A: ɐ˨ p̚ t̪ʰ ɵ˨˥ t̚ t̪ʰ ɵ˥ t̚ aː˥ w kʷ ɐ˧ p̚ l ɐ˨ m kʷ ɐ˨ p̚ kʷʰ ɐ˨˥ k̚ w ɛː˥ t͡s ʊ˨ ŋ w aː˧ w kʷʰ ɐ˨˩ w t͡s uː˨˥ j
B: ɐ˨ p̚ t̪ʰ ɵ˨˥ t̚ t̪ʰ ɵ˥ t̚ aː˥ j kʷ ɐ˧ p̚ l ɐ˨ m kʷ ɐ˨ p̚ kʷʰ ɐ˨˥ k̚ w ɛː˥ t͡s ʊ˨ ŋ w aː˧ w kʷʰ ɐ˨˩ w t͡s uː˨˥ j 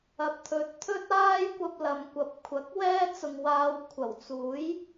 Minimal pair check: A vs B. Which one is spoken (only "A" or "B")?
B